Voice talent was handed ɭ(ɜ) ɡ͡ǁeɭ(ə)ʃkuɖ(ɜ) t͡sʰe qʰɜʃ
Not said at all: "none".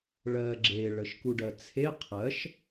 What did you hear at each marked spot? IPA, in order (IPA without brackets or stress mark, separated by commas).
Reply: ɜ, ə, ɜ